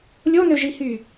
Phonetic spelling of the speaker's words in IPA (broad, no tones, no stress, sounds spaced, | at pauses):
lʲ o n ø ʒ i h y